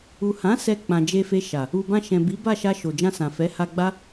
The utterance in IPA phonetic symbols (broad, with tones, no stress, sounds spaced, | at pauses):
u˨ h ã˨˦ s ɛ˧ k͡p ã˨ d͡ʒ e˧ f e˧ ʃ a˨ | u˨ b ã˧ ʃ ɛ̃˨ b i˨˦ b a˦˨ ʃ a˧ ʃ o˨ d͡ʒ ã˧ s ã˨ f ɛ˨˦ h a˧ ɡ͡b a˦